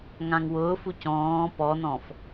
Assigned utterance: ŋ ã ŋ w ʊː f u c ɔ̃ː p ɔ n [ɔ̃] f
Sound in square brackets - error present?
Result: no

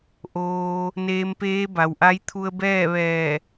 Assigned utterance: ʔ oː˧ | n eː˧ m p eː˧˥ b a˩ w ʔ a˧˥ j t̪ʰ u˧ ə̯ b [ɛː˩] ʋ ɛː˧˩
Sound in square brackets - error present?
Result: yes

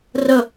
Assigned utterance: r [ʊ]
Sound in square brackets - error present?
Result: yes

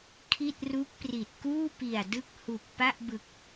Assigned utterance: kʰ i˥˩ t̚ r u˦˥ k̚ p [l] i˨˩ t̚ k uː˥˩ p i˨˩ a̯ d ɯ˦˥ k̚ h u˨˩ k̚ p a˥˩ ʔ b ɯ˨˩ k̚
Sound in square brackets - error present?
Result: yes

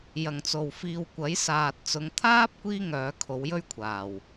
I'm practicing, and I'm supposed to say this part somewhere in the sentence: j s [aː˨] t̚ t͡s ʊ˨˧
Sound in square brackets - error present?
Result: no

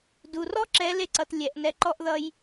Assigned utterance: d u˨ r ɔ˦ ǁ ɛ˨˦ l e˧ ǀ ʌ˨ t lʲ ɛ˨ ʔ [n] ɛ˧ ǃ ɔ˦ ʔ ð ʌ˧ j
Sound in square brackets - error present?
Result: no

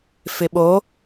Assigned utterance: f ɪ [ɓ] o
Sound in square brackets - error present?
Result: no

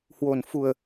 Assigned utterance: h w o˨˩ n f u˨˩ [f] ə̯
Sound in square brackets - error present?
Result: yes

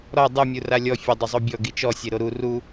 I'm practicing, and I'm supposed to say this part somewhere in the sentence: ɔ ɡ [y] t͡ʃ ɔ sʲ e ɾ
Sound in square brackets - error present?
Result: yes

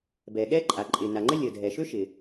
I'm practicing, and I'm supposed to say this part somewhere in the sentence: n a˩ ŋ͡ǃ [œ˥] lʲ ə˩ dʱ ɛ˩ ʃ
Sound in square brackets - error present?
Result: yes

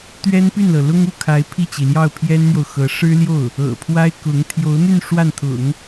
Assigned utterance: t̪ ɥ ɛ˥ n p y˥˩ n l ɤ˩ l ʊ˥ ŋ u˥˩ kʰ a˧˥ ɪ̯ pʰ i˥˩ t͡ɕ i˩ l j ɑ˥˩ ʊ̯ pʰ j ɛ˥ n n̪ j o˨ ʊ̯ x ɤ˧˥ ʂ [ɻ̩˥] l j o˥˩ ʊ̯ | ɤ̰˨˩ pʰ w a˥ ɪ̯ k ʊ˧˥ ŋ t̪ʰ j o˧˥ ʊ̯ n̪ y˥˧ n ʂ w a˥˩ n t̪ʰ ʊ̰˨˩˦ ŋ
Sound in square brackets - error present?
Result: no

